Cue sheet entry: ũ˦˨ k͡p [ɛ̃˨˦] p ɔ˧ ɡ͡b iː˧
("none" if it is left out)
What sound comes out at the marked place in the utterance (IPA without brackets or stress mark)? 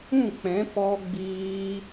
ɛ̃˨˦